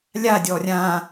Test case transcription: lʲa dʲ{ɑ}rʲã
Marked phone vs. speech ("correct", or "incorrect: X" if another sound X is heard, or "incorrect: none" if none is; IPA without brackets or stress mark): incorrect: ɔ